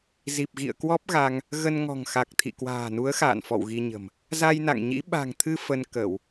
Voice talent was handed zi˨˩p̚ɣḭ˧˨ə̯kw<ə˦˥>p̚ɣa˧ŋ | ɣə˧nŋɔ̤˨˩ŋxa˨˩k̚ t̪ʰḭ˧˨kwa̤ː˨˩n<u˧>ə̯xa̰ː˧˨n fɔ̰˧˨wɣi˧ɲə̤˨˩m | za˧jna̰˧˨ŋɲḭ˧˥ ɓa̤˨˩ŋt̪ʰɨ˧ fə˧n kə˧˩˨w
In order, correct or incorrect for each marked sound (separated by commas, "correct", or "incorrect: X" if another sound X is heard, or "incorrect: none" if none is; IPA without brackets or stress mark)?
incorrect: ɔ˦˥, incorrect: u˨˦